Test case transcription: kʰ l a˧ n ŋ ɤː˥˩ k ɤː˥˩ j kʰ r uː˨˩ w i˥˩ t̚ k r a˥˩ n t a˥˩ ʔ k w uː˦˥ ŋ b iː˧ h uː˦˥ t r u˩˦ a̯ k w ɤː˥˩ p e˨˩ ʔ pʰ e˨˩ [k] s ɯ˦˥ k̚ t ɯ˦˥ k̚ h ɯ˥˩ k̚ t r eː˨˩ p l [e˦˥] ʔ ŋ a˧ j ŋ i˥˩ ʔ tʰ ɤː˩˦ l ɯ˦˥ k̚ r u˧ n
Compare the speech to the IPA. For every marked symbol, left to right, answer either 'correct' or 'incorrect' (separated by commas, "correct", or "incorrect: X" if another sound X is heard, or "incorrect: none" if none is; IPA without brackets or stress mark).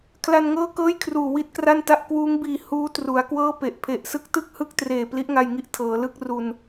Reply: incorrect: ʔ, incorrect: i˦˥